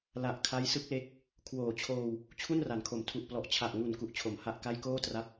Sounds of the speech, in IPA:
l a˨˩ ʔ kʰ a˦˥ j s ɯ˦˥ k̚ l e˦˥ k̚ | kʰ w oː˨˩ t͡ɕʰ oː˧ w | t͡ɕʰ u˥˩ n r a˩˦ n kʰ o˩˦ m tʰ u˨˩ ʔ p l ɔ˨˩ ʔ t͡ɕʰ a˨˩ ʔ ŋ u˨˩ n k u˨˩ ʔ t͡ɕʰ o˩˦ m h a˦˥ ʔ k a˥˩ j k oː˥˩ t r a˦˥ p̚

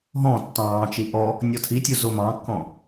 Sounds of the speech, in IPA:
ɦ ɔ̃ tː ɑ̃ː t͡ʃ i ʔ ɔ | nʲ ɔ tʰ i tʲ u z o m ɑ̃ kː ɔ̃

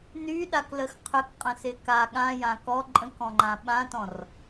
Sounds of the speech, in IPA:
n y ɗ a k l ə x qʰ ʏ k qʼ ə̃ s ɪ k a ɠ ã j ã k ɔ ǃʼ ə̃ k ɔ̃ ŋ͡ǃ ã ɓ ã t ɔ̃ r

